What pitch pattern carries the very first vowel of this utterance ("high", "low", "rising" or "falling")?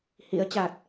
rising